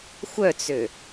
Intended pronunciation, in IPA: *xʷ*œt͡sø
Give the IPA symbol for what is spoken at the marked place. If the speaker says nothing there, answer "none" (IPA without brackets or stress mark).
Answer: xʷ